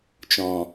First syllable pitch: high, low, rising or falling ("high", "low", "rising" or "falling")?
low